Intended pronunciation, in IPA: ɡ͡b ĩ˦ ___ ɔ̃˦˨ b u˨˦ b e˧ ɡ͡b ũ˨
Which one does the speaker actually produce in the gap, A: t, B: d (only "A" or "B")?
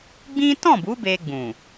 A